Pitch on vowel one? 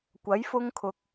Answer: rising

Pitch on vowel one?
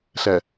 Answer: low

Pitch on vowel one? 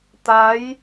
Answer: rising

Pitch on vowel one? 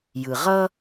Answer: low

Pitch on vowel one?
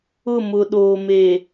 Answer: falling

